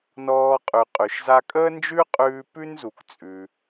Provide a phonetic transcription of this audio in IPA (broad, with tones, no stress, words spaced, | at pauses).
nɔː˧qʼʉ˩ qʼʉ˩ʃza˧ kʼəː˥nd͡ʒʉ˥qʼʉː˧ pʉ˥n zu˩kt͡sʼʉ˩